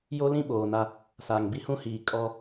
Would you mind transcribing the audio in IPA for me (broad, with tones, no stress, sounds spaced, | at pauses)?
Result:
j o˦ l ĩ˦ ɓ oː˨ n a˦ | s a˨ ŋ b i˦ h ũ˦ h iː˨ kʼ ɔ˦